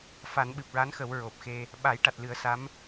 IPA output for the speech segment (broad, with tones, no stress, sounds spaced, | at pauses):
f a˨˩˦ n ɓ ɨ˨˩ p̚ ɹ a˧˥ n x ə˨˩˦ w ɹ o˨˩ p̚ x e˧ | ɓ a˨˩˦ j ʈ a˨˩ t̚ l ɨ˨˩˦ ə̯ s a˧˥ m